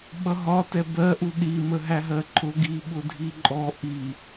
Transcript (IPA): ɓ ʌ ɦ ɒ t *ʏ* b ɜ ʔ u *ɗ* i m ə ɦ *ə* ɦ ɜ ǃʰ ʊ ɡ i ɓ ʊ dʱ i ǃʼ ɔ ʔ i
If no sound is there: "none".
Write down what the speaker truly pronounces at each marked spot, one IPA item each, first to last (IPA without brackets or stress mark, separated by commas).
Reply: ɛ, ɗ, æ